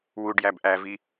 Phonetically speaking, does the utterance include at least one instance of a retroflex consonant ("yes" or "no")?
yes